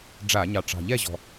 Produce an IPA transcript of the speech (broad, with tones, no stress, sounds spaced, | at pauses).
ɖ͡ʐ a˧˩˧ ɲ ɑ˨˩ ʈ͡ʂ ɑ̤˨˩ ʎ ɛ˥˨ ʑ ɔ̤˨˩